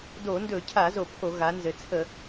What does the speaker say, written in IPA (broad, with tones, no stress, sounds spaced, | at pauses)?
d o˧˩˧ n d ɵ˧˩˧ cʰ a˧˩˧ z o˧˩˧ pʰ o˧˩˧ ɣ a˩˧ n z ɘ˩˧ t͡sʰ ə˧˩˧